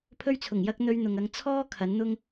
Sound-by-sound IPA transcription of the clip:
pʰ ɵ˧ ɥ t͡sʰ ʊ˨˩ ŋ j ɐ˧ k̚ n̪ ɵ˧ ɥ n̪ ʊ˨ ŋ ɐ˧ ŋ t͡sʰ ɔː˥ kʰ ɐ˨˥ n n̪ ʊ˥ ŋ

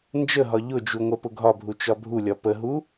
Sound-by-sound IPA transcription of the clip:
n d͡ʒ ə ɦ ɒ ʎ ʊ d͡ʒ u ŋʷ ɛ p ʊ ɡʱ ɒ bʱ u t͡ʃ ɒ bʱ u lʲ ɒ p ə ɦ u

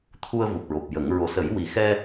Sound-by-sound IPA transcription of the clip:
t̪ʰ u˧ ə̯ v u˨˩ p̚ ɹ o˨˩ p̚ j ə˨˩˦ ŋ ɹ o˨˩ s ə˨˩˦ j w i˨˩ x ɛ˧

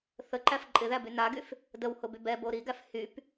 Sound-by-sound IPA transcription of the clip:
θ ə ǃ æ f ǃʼ ɪ ð æ b y n a ɡ y f | d ə w h ʊ b y b ɛ b o ɾ i ɡ æ f h y p

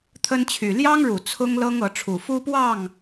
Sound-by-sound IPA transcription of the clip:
t̪ʰ ə˦ n t͡ɕʰ y˨˩ l j ɑ˦ ŋ ɻ u˨˩ t͡sʰ ʊ˦ ŋ l ɤ˦ ŋ ɤ˨˦ ʈ͡ʂʰ u˨˩ f u˦ p w ɑ˥˨ ŋ

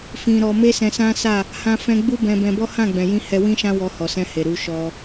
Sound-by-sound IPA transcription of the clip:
f ĩ˧ ɾ ɔ˧ m e˦ s ɛ̃˧ s ã˦ s a˦˨ | h ã˦ f ɛ̃˦ ɡ͡b u˦ b ɛ̃˧ b ɛ̃˧ b ɔ˦ h ã˦˨ ɡ͡b ɛ̃˨ j ĩ˧ h ɛ˧ w ĩ˦ ʃ ã˦ w ɔ˧ h ɔ˨ s ɛ̃˧ h e˨ ɾ u˨˦ ʃ ɔ˧

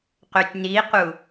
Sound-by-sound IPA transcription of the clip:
q ø tʲ n i q u

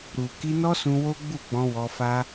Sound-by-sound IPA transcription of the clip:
ɾ u˨ k i˧ n ɔ˦ s ũ˧ w o˦ ɡ͡b u˦˨ ɡ͡b ɔ̃˧ w ɔ˧ f a˦

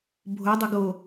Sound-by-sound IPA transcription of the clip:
bʱ o dˤ ʏ ɡ o

